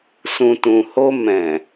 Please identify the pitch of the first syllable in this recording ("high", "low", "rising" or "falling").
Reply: low